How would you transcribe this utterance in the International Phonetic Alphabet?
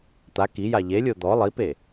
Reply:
t̪a kija ʎelʲo d̪ɔ lˠipe

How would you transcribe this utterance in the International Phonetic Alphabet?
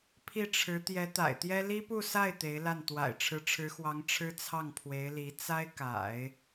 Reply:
pʰi˥˩ʈ͡ʂʰɻ̩˧˥ t̪jɛ˧˥t̪a̰˨˩ɪ̯t̪jɛ˥ li˥pu˥˧sa˥˩ɪ̯ t̪e˧˥ɪ̯la˥˩n t̪wa̰˨˩ɪ̯ʈ͡ʂʰɻ̩˧˥ʈ͡ʂʰɻ̩˧˥xwɑ˧˥ŋ ʈ͡ʂʰɻ̩˥ t͡sʰɑ˥˩ŋpʰwe˧˥ɪ̯li˧˥ t͡sa˥ɪ̯ka̰˨˩˦ɪ̯

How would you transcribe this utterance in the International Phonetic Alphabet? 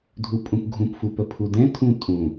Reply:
dʱupʼũpɡʱũpfu pəpʰudɛ̃tʰũ tʼũ

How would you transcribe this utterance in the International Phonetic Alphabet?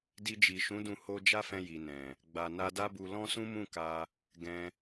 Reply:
di˧d͡ʒi˨ʃũ˨˦dũ˧ ho˧ d͡ʒa˦fɛ̃˧ ji˨nɛ̃˨ | ɡ͡ba˨na˧da˦bu˧ lɔ̃˦sũ˦ mũ˦˨ka˧ | ɡɛ̃˧

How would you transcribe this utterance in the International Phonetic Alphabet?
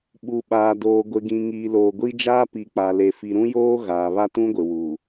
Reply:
ɓu˨ɓaː˨ doː˨ɡʷɪ˨ɡĩ˨ ŋiː˨loː˨ɡʷi˦d͡ʒaː˦ pi˨k͡pa˨le˨ fi˨ɾũ˦joː˦ ɣaː˨βa˦ tũ˦ɡʷɪ˨ wu˨

